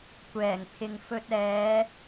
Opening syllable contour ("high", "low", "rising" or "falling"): low